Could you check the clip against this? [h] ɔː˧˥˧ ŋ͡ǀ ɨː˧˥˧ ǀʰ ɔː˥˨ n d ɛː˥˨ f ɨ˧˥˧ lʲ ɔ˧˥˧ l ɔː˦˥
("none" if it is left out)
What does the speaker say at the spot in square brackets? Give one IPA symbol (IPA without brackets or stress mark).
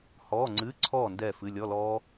h